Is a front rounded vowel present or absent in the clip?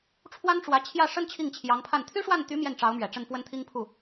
present